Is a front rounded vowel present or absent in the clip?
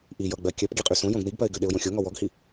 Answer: present